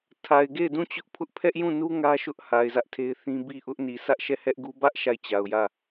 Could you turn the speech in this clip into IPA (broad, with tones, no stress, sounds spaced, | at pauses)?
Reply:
tʰ a˨ ɪ̯ ɡ e˦˨ ɪ̯ d ũ˦˨ t͡ɕ ʊ˦ ʔ pʰ ʊ˦ ʔ pʰ ɛ˦ ʔ j ũ˦˨ n u˦ ŋ ä˦ ʃ ʊ˦ ʔ h a˨ ɪ̯ z ä˦ ʔ tʰ e˦ ɪ̯ θ ĩ˦ b i˦˨ ʔ ʊ˦ ʔ n i˨ s ä˦ ʔ ʃ ɛ˦˨ h ɛ˦ ʔ ɡ u˦ b ä˦ ʔ ʃ a˦˨ ɪ̯ t͡ɕ a˨ ʊ̯ j ä˦˨